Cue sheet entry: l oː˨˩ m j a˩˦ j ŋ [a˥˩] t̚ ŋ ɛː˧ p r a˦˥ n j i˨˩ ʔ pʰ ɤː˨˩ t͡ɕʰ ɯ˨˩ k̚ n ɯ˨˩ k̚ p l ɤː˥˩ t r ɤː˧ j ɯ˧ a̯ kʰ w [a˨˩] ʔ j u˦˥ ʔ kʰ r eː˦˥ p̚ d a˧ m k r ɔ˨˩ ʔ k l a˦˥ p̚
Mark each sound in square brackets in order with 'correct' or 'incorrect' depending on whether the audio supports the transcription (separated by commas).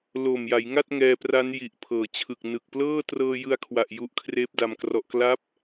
correct, correct